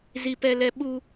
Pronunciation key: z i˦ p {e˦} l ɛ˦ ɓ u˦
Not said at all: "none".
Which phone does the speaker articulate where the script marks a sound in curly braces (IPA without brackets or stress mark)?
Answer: ɛ˦